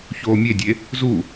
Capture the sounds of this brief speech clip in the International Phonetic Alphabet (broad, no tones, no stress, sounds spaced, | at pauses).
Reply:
ç oː mʲ e dʲ e | z u